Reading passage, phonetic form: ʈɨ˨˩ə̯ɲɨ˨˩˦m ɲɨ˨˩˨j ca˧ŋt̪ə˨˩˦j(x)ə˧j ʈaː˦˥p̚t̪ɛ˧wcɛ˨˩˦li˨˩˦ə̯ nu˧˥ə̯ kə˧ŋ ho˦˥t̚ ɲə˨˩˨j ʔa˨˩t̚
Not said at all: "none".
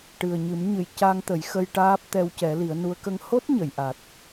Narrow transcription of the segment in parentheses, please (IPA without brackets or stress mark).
x